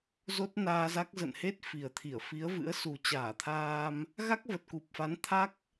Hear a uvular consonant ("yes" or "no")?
no